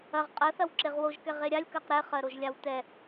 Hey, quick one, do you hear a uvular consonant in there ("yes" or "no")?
yes